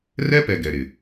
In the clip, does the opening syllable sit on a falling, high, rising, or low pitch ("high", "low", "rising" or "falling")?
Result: high